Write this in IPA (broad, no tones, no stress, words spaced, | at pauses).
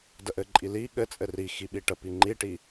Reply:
dəʔɘǃʼi li ɠɘt͡sʼɘ rixi ɓiʈəpi ŋ͡ǃiʈi